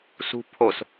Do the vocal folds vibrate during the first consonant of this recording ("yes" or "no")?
no